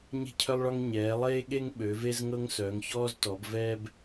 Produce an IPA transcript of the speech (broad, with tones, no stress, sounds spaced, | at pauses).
ɲ e̤˦ cʰ œ˦ lˠ ɭ ɒ˦ ŋ ɲ ɛː˩˧ lˠ eː˦ ɠ e˦ ŋ ɓ ø˩˧ v e˦ z ŋ ɤ˦ ŋ s œ˩˧ ŋ ç ɔː˦ z t ɔ˩˧ b v ɛː˦ b